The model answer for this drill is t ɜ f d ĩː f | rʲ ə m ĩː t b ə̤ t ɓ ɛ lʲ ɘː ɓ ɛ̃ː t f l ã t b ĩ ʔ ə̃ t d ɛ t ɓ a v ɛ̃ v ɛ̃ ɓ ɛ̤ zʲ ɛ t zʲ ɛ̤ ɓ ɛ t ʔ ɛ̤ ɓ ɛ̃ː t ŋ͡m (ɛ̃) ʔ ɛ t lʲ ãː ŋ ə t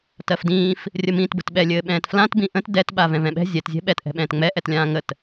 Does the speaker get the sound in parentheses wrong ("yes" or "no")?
yes